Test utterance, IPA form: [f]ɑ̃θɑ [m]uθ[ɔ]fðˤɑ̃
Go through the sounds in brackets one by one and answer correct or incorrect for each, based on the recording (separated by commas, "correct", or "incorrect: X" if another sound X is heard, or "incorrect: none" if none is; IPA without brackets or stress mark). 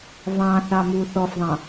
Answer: incorrect: v, correct, correct